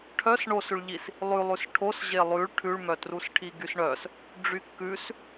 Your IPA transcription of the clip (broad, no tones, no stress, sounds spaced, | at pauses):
ʈʰ œ s ɳ o s ʉ ɭ ʎ i s | lˠ ʉ lˠ ʉ s ʈʰ o s ʑ e lˠ ʉ ɭ ʈʰ ʉ ɭ m œ t r u s ʈʰ i ɡ y s ɳ œ s | ɖ͡ʐ y kː ʉ s